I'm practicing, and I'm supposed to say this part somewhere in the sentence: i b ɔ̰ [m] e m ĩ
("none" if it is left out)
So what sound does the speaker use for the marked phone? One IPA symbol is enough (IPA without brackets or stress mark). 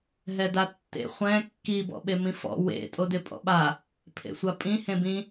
ɓ